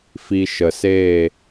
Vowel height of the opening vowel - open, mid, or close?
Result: close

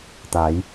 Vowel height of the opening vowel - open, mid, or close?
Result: open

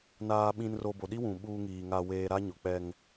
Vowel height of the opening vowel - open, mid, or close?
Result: open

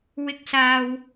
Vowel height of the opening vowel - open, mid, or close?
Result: close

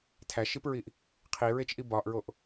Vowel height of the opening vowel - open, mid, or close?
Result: open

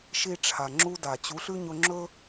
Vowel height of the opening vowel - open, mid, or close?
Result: close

